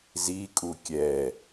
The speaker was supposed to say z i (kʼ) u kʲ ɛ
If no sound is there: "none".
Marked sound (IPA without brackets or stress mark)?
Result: kʼ